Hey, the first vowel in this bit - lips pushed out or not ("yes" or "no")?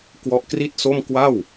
yes